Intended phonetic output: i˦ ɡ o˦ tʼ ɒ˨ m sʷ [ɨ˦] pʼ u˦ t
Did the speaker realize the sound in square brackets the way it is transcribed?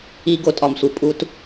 no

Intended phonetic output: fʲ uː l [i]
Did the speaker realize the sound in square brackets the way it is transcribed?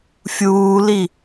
yes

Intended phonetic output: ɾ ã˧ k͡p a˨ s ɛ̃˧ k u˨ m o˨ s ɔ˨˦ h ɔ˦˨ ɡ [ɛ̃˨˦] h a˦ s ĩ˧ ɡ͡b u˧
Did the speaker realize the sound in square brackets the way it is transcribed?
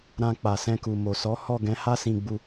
yes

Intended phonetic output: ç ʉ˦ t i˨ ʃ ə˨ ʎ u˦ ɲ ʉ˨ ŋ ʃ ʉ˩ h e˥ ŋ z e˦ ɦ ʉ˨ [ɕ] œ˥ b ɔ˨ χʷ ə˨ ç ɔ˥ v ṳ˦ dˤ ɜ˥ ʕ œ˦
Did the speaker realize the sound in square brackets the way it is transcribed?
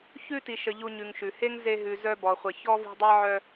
no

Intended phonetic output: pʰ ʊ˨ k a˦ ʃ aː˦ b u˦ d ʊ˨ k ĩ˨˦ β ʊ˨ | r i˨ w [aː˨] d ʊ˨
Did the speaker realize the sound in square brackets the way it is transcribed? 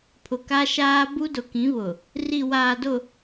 yes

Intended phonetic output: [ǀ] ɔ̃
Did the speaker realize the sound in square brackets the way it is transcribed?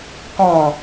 no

